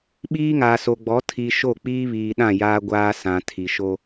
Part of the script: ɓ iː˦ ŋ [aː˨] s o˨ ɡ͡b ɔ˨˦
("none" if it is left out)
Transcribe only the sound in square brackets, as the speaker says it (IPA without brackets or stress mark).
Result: aː˨